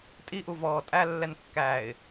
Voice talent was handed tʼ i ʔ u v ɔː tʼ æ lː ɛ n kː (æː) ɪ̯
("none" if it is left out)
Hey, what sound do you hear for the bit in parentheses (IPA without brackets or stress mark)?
æː